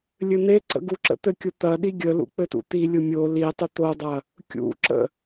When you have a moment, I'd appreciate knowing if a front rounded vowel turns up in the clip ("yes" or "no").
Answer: no